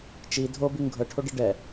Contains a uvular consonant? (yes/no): no